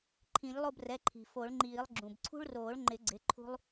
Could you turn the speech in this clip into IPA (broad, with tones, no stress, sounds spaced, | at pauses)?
ǃʰ ĩ˨˩˦ ʎ lˠ o˦˨ b r ɛ˩˧˩ ǃʰ i̤˩ f o˨˩˦ ɭ ŋ͡ǃ iː˨˩˦ lˠ ɡ͡ǁ ũ˩ b ǀʰ ṳ˦ ɭ r oː˨˩˦ ɭ ŋ͡ǃ ɪ˨˩˦ ɡ͡ǀ ɪ˩˧˩ ǃʰ ṳ˦ lˠ